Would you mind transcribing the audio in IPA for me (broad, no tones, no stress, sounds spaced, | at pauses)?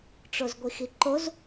ʈ͡ʂ o z ɡʷ i x i ǃ o z